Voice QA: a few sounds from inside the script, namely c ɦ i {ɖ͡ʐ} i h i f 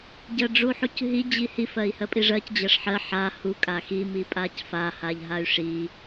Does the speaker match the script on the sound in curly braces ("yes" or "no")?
no